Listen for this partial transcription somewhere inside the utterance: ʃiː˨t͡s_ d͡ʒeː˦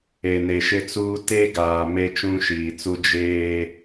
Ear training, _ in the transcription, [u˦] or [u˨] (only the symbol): u˦